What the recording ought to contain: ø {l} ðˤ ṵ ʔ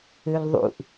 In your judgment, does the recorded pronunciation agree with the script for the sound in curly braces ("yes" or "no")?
yes